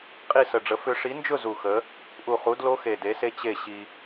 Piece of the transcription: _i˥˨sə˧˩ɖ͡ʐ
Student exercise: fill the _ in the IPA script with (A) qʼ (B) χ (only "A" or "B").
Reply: A